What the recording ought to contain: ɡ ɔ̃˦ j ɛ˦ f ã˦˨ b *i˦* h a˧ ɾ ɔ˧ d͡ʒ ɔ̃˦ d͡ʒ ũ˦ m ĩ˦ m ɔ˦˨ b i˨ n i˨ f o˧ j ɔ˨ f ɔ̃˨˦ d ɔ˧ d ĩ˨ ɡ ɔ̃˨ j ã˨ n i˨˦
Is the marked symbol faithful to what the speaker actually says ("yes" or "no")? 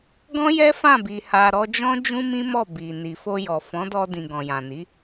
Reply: no